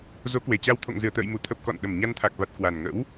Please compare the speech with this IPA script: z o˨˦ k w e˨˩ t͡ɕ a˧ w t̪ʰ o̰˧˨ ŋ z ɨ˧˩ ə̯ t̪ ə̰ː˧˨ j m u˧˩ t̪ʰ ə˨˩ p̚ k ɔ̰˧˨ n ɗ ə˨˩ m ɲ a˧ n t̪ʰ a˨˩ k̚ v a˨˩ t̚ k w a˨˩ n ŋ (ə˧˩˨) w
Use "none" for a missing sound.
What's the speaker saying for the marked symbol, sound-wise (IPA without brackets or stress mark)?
ə̰˧˥